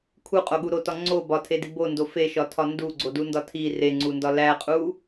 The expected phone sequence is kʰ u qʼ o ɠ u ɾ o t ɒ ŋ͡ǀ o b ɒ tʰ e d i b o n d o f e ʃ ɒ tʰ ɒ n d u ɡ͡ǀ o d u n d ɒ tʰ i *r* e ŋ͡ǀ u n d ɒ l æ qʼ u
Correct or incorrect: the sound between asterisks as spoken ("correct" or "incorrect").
correct